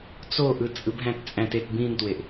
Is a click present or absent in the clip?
absent